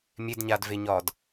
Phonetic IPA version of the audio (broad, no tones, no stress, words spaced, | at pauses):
mʲedɲaːdveɲɒːd